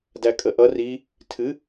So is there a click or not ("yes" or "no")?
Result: no